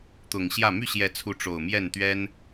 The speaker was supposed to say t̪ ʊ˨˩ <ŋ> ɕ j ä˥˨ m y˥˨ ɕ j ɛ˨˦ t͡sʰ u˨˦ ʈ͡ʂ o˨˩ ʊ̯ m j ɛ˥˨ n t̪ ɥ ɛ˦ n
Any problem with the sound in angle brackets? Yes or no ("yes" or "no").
no